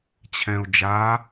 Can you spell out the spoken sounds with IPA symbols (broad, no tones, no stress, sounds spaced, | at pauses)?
t͡ɕʰ ɛ̃ ʊ̯ d͡ʒ a